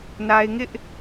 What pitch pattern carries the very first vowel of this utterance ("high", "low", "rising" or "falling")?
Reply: high